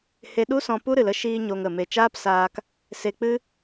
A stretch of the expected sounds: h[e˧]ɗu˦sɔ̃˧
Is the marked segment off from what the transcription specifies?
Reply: no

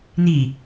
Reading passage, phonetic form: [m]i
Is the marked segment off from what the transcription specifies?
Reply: yes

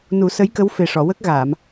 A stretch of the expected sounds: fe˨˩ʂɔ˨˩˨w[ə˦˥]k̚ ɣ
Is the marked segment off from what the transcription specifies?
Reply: no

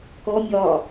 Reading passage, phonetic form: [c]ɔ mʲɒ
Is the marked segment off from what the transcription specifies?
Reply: yes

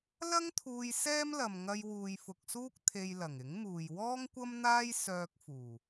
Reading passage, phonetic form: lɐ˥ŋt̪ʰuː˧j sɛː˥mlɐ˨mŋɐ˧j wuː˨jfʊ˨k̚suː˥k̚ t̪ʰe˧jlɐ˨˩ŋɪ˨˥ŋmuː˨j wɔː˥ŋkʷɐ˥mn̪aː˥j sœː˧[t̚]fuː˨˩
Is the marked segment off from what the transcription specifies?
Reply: yes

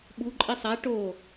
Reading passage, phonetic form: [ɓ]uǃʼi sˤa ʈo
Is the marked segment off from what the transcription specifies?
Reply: no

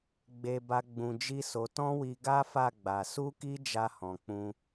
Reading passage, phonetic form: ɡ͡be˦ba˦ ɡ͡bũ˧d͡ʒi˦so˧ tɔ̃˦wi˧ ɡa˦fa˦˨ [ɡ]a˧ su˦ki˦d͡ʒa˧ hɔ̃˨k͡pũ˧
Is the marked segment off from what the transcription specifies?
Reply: yes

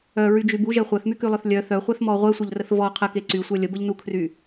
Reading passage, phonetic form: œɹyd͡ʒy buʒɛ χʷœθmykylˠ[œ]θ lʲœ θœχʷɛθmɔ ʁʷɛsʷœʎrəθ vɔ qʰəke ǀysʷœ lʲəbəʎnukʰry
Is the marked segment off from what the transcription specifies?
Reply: no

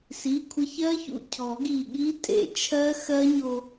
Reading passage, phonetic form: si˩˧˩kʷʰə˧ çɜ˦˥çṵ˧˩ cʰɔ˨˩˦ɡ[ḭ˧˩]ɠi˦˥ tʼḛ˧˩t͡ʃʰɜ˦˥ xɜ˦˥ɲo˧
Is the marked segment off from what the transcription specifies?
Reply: yes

